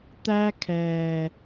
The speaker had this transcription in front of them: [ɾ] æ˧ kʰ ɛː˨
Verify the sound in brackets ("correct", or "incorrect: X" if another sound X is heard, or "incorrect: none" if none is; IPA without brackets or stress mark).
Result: incorrect: t̪